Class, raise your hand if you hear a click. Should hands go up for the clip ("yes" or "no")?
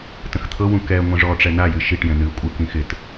no